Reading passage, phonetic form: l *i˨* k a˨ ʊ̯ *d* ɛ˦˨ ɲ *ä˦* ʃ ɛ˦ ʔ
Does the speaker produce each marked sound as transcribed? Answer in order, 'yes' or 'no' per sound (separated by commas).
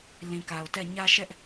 no, no, yes